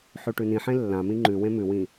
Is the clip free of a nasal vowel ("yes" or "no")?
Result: no